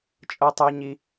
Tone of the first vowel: high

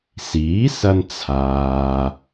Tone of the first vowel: rising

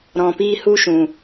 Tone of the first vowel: low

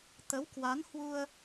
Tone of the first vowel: rising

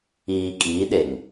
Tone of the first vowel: low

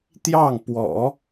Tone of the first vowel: falling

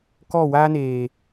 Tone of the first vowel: falling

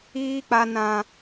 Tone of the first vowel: high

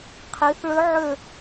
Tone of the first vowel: rising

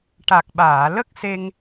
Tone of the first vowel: low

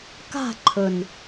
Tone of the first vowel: falling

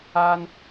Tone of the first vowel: high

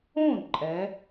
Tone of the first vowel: falling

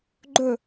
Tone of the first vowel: falling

